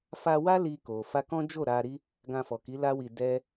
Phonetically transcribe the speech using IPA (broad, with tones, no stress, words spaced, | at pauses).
fa˧wa˦ li˧ko˨ fa˧kɔ̃˦d͡ʒo˦˨ ɾa˧ɾi˦ | ɡã˧fɔ˨ki˨˦ la˦wi˧ dɛ˦